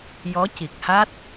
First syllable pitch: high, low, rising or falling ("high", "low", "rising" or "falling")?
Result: rising